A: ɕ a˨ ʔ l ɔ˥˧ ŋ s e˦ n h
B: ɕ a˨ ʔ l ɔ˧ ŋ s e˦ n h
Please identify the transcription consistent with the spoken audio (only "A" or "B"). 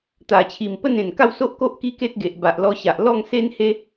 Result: A